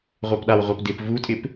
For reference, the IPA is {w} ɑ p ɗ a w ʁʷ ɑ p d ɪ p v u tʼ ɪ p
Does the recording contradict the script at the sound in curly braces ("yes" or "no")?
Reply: yes